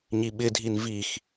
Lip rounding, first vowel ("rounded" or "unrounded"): unrounded